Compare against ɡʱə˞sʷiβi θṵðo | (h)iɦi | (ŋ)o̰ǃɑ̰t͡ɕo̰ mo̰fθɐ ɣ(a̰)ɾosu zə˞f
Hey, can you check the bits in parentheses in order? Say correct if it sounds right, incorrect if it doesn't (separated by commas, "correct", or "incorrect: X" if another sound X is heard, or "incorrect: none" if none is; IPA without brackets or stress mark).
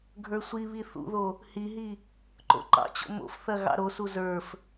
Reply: correct, incorrect: ǃ, incorrect: ɑ̰